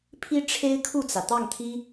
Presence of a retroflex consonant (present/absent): present